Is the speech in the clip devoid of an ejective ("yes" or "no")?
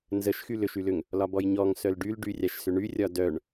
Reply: yes